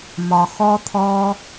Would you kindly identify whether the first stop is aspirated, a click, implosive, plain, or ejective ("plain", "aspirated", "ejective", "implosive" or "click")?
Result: aspirated